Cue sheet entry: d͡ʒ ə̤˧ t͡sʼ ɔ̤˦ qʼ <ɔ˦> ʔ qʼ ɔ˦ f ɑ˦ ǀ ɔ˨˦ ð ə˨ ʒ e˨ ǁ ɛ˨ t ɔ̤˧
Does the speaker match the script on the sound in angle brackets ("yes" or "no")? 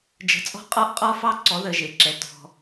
yes